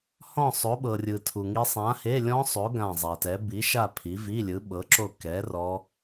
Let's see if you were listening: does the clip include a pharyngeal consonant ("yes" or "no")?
no